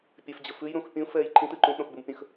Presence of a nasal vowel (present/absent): present